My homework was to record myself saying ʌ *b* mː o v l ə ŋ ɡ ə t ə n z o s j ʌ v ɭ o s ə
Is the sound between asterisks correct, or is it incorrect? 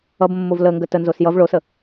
correct